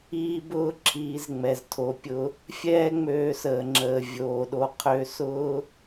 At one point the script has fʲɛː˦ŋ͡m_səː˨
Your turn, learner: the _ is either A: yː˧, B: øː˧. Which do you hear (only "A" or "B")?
B